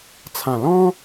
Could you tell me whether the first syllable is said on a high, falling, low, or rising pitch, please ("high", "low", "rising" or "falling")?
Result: low